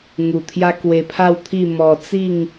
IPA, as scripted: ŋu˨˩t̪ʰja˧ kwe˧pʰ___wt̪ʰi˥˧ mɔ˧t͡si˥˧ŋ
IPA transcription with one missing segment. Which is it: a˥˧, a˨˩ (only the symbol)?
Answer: a˥˧